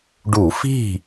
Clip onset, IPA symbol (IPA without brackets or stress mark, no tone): ɖ